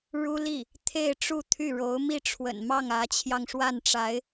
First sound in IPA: ɻ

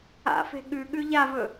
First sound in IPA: a̰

